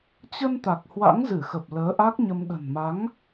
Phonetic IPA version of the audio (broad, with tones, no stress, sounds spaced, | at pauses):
t͡ɕ ə˧ n t̪ a˨˩ k̚ h w a̰˧˥ ŋ z ɨ˧˩ x ə˨˩ p̚ l əː˨˦ ʔ a˦˥ k̚ ɲ ə˧ m ɗ ə̤˨˩ n m a˨˦ ŋ